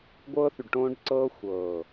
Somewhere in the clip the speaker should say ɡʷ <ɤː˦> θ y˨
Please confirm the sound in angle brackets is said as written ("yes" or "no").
yes